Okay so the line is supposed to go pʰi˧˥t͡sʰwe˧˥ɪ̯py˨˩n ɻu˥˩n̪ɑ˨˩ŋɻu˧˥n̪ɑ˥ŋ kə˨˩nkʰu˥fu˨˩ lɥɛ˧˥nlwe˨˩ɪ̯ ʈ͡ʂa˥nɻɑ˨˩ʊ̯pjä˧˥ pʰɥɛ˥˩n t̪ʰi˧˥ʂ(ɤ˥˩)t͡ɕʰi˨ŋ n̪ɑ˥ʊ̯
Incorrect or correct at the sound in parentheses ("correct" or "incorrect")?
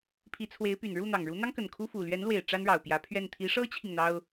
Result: incorrect